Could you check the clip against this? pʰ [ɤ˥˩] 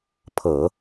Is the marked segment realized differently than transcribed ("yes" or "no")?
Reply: yes